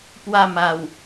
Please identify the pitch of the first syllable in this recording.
falling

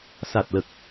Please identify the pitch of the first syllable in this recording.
low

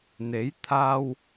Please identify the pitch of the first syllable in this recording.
rising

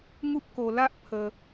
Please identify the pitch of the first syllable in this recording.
high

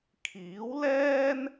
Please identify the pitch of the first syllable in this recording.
rising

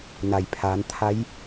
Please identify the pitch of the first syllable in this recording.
low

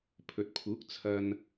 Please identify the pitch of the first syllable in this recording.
low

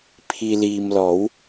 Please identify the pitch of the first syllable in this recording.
low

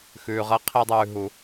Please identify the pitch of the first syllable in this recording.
low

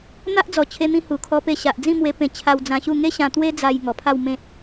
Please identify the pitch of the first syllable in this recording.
high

